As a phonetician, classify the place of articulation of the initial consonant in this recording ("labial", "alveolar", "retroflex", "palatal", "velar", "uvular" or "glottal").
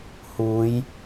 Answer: glottal